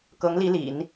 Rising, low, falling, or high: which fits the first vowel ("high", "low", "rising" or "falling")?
rising